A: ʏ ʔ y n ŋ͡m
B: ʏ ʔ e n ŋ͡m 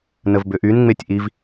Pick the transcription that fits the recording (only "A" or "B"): A